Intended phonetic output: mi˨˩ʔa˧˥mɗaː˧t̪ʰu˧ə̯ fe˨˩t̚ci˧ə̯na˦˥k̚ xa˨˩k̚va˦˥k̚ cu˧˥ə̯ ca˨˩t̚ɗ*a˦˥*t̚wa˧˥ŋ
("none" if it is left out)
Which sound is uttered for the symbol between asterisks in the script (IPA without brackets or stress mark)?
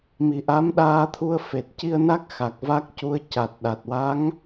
a˨˩